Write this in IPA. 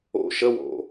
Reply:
o̰ ʃ ə w o̰

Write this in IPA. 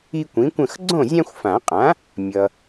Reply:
i˦ kʷ ĩ˩˥ kʷ ə̃˥˨ x ɡ͡ǀ õ˥˨ zʲ ã˦ xʷ f ã˨˩˦ qʼ ã˩˥ | mʲ ʌ˨

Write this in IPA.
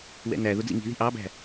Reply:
w ɛ̰ n æ ð ʊ d͡z ḭ ŋ i̤ ð i̤ ʔ ɑ b æ̤

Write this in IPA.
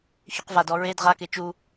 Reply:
ç ʉ q v a d ɔ ɹ e d ʁ a k e t͡ʃ u

